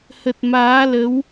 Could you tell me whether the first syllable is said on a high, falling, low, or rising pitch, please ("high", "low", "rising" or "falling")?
low